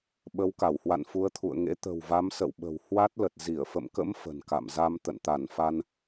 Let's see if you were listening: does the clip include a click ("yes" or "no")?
no